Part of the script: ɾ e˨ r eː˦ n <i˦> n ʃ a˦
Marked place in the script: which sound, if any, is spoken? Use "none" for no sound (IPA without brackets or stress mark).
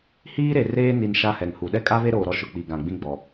i˨